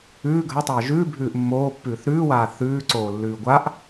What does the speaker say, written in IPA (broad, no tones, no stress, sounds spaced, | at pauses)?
ʉː ɡʱ ɐ tˤ ɐː ʒ ʉ bʱ ʉː ʔ mː oː pː ʉː θ ɾ ʉː w aː θ ʉː ǀ oː lː ʉː ɡʷ a ʔ